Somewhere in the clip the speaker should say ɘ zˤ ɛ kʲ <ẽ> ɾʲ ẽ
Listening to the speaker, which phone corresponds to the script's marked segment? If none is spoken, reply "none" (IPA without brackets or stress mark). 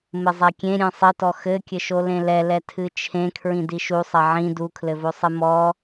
ẽ